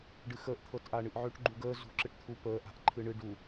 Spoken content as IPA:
ɖɨxəːʔ t̪ʰɤtʔaɳɨʔʕøʈ ɡ͡ǃuɡəː zṳ ǁɨʈt̪ʰu pəː ʔa̤ʔǃʰɨɳɨ ɖu

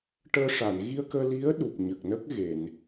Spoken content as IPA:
ʈəː˧ʂa˨˩˨n ɣi˧ə̯kəː˧li˧˥ə̯ ɗu˨˩p̚ɲə˨˩k̚nə˦˥k̚ ɣe˨˩˨n

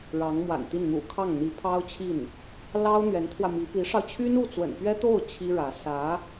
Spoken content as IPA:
ɻɑ˧˥ŋmwa̰˨˩nt̪i˥˩n n̪ṵ˨˩ kʰɑ˥˩ŋn̪i˧˥pʰɑ˥ʊ̯t͡ɕʰi˥˩n | lɑ˥ʊ̯ n̪ɥɛ˧˥nt̪ʰwä˧ mi˧˥ pi˧˥ʂɑ˧ʊ̯ t͡ɕʰy˥nu˥˩t͡swə̰˨˩npɥɛ˥ t̪o˥˩ʊ̯ t͡ɕʰi˥ɻä˧˥ sä˧˥

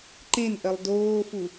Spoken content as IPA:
ǃẽnʔɜlˠ doːfu

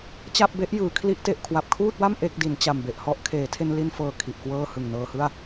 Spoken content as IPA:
t͡ɕa˥˩p̚be˦˥ʔ jɯː˩˦kʰli˦˥ʔ te˨˩ʔkʰwa˨˩p̚kʰuː˥˩t̚wa˥˩m ʔe˥˩k̚di˩˦n t͡ɕa˨˩mbe˨˩ʔhɔ˥˩ʔ kʰeː˩˦tʰe˧nli˧nfɤː˨˩ kʰi˨˩ʔkwɤː˥˩ hɯ˨˩ŋnɤː˧hɯ˥˩a̯

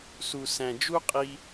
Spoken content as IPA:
su˨sæ̃˨d͡ʒu˦qʼi˧

